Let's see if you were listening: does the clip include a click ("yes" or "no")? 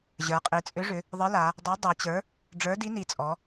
no